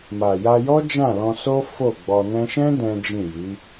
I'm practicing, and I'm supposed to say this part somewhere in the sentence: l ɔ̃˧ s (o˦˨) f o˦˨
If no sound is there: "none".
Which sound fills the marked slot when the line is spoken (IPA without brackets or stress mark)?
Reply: o˦